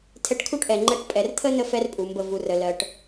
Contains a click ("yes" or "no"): yes